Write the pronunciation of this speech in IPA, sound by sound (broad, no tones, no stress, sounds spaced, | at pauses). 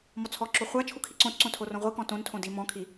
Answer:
m ɔ t͡sʰ ɔ ǁ o χʷ a t͡ʃʰ u kʰ i ǀ õ t ǀ õ tʰ o r õ ʁʷ i k ɔ̃ t õ n tʰ õ d i m ɔ̃ kʰ i